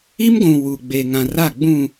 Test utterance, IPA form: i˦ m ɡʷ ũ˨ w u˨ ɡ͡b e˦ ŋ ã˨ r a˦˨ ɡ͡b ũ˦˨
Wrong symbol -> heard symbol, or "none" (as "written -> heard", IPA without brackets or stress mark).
e˦ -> e˨